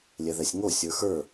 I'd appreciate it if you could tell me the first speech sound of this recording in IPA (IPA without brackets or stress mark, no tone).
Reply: lʲ